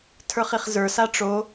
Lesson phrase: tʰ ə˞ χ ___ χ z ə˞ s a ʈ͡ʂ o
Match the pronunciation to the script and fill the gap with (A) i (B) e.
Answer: A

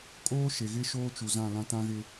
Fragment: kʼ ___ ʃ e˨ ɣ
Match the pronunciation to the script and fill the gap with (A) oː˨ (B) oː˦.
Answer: B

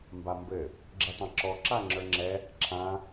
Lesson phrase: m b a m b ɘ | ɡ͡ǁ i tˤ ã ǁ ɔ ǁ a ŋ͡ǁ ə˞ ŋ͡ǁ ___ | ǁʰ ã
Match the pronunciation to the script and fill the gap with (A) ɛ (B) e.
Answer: A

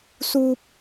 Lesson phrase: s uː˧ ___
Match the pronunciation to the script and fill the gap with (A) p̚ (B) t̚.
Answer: A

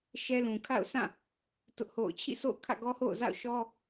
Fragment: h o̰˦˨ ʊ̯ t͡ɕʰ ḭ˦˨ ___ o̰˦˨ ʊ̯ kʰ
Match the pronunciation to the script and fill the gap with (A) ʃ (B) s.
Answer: B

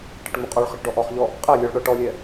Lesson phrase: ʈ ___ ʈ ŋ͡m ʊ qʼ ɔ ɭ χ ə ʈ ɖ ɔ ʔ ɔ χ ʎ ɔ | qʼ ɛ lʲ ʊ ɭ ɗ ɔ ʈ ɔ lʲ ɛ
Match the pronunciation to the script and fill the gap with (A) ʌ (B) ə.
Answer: B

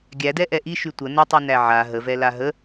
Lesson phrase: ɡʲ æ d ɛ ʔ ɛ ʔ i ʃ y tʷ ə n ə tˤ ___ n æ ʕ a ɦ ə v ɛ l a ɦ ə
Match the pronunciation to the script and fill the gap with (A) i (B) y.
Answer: B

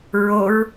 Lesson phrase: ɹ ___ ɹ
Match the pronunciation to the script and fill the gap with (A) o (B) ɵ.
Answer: A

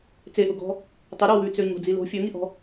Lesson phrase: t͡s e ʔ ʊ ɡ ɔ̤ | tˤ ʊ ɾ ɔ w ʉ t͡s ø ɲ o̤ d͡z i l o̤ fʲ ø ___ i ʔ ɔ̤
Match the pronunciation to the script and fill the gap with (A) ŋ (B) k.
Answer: A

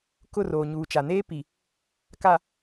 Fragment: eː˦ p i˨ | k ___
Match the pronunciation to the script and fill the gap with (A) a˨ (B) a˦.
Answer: A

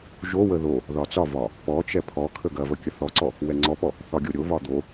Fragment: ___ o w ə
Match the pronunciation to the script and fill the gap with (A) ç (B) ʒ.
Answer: B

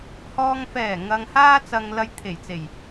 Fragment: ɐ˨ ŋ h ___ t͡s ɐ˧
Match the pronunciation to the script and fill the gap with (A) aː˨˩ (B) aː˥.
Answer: B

